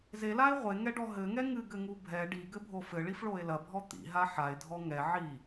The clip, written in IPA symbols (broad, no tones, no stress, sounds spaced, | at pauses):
z e l a e̯ ʁʷ e ŋ ɛ ɖ ɔ ɦ ɘ ŋ ɛ ŋ ɨ ɡ ɘ ŋ u bʱ ɛ ɖ i ɡ ɘ bʱ o f ɘ ɭ i f ɭ o e̯ l ɐ bʱ ɔ t̪ ḭ ɦ a ħ a e̯ dʱ ɔ ŋ ɛ ʕ i